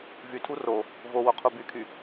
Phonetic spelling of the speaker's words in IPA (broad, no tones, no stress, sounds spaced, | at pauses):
v y tʰ u r o | v o w o qʰ u b y kʰ y